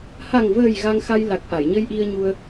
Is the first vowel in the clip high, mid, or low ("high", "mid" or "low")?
low